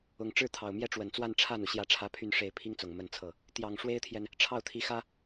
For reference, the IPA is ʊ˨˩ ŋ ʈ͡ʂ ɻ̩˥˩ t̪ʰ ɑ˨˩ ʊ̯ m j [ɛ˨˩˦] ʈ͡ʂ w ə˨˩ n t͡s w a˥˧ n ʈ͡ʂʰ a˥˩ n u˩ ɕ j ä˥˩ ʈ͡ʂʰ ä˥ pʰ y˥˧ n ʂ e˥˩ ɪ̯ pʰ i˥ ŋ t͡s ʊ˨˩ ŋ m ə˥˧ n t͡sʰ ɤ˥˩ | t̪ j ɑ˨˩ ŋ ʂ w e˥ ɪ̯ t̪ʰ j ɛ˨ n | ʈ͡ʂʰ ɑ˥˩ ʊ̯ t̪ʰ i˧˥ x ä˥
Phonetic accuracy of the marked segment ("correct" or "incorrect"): incorrect